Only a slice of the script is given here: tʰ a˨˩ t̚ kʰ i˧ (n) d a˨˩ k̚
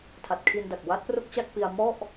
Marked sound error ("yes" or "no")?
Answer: no